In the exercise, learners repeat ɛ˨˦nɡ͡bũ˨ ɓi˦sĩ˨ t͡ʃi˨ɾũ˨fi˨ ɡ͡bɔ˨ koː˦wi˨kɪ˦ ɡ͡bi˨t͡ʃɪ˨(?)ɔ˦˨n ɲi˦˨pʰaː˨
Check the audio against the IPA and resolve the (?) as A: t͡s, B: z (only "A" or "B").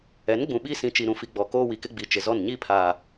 B